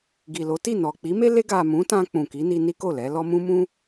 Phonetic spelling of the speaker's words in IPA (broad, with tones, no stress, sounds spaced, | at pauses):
ɡ i˨ l o˨˦ t i˦˨ n ɔ˨ k͡p i˨˦ m e˦ l e˧ ɡ a˨ m ũ˨˦ t ã˧ k͡p ũ˨ k i˨˦ n i˧ n i˦ k o˦˨ l ɛ˨˦ l ɔ˦ m ũ˦ m ũ˦